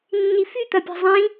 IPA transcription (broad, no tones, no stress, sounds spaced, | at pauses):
nː i f y t̪ ɐ pʲ a̤ zˤ ĩ